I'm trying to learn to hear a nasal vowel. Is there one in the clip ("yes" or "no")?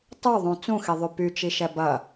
yes